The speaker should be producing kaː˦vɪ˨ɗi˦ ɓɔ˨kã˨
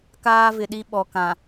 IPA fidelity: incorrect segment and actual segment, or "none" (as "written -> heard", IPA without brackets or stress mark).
none